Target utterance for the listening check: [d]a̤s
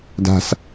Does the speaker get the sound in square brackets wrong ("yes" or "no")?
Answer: no